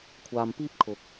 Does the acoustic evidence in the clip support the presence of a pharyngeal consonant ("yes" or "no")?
no